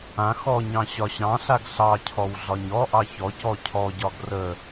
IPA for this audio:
ã x ɔ ɲ ɑ̃ ɕ ɒ ɕ ɑ̃ ɬ a ɡ ɬ ɑ cʰ ɔ w ɮ ɒ ɲ ɔ ʔ ɑ ç ɔ c ɔ cʰ ɔ ɟ ɒ ɡ r ə

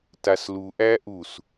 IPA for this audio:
t a s l u ʔ æ ʔ u s

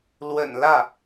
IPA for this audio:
l w ə̰˨˩ n l ä˥˩

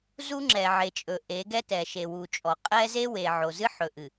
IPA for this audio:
z u˦ ŋ͡ǁ ɛ˨ ʕ e˨ t͡ʃʼ ɵ˨ ʔ e˨˦ ɡ ɛ˦ t ɛ˨ ʃ e˨ w u˨ t͡ʃʼ ɔ˨ qʼ ɛ˦ z e˦ w e˨ ʕ o˨ z ɨ˦ ħ ɵ˨ ʔ ɨ˨

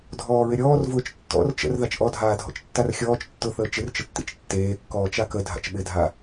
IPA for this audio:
dʱ ɔː ɹ ɪ ɾʲ ɔː r v ʊː t͡ʃ tː ɔ̰ r t͡ʃ ə̰ r ð a t͡ʃ ʔ ɔ dʱ aː dʱ ɔ̰ t͡ʃ tː a r xʲ ɔː t͡ʃ tː ʊ θ əː t͡ʃ ɪ r t͡ʃ ə tː ḭ t͡ʃ tː eː kː ɔː t͡ʃ a k ə dʱ a̰ t͡ʃ ɓ ɪ dʱ a

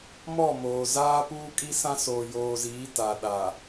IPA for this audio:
m ɔ˦˨ m oː˨ z aː˦ p uː˦ kʼ i˦ s ã˦ s oː˨ j oː˨ z iː˨˦ t a˨ ɗ a˨

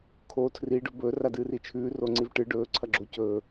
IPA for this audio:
kʰ o tʰ r i ɖ ɵ b ɵː r a d ɨː r i t͡ʃʰ ʉː r o ŋ͡ǀ i v ʈ ɨ ɖ ɵː ǀʰ ɐ ɡ͡ǁ o c ɵː

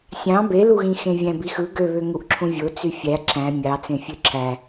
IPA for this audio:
sʲ ɑ̃ b e l u ɣ ĩ x ẽ vʲ æ̃ b i x ɯ ɡ ø β ø ŋ u ʔ ǁʰ ũ vʲ o t͡s y fʲ æ ǁ æ̃ mʲ ɑ t͡s ẽ fʲ ø ǁʰ æ

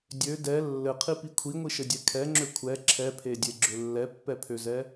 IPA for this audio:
dʲ ø d ɛ lː ɘ qʰ i p i kʷʰ i ŋʷ i ʃ ɘ dʲ ɛ kʰ ɛ ŋ͡ǁ ø kʷʰ ɛ ǁʰ ɛ pʰ e dʲ e ɡ͡ǁ ʏ lː ɛ pː ɛ pʰ ø z ɛ

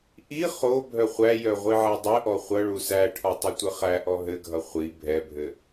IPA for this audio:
ʔ i χ o bʱ œ χʷ æ j œ ʁʷ i ʕ æ dˤ ɘ ʔ ɔ χʷ ʌ ɭ u s æ ʈʰ ɔ tˤ ʌ tʷ ɘ χ æ ʔ ɔ ɦ ɘ ɡʱ ʌ χʷ i bʱ ɛ bʱ ɘ

